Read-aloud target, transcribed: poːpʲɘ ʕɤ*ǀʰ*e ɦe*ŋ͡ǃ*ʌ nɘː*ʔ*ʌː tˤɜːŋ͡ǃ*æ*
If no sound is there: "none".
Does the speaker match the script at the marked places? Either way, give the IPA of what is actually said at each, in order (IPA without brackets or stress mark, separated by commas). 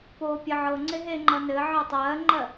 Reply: ŋ͡ǀ, ŋ͡ǃ, ʕ, ɜ